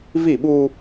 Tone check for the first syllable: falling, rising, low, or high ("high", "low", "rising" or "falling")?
falling